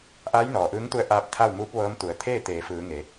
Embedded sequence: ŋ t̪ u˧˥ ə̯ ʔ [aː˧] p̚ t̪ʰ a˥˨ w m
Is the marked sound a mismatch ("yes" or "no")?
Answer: no